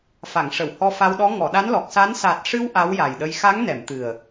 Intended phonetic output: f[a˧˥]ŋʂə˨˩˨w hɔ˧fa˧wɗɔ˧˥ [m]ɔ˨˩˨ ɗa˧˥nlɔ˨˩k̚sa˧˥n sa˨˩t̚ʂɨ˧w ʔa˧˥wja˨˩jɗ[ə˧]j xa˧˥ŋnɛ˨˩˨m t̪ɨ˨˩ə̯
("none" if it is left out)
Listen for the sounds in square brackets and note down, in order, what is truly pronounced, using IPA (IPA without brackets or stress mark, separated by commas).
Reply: a˨˩˨, ŋ, ə˧